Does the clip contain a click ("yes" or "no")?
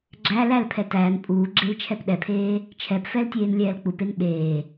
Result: yes